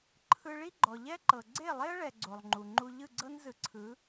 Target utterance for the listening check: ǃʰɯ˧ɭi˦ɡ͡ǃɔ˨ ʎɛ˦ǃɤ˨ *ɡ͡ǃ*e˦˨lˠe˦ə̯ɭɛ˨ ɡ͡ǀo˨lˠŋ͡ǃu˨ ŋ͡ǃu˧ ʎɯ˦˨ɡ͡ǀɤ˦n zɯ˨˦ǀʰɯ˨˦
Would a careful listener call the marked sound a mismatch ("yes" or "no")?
yes